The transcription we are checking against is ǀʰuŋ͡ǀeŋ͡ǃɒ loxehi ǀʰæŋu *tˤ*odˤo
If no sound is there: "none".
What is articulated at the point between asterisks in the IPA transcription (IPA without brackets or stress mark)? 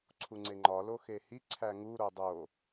ɾ